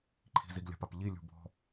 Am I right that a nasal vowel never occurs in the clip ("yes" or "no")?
yes